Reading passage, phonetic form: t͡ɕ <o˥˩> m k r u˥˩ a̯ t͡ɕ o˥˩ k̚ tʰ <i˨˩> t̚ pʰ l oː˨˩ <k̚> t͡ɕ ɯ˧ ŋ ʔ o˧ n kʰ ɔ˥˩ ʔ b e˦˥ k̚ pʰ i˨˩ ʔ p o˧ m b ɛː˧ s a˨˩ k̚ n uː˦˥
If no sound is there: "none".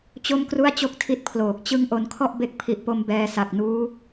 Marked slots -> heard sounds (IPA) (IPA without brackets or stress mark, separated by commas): o˥˩, i˦˥, k̚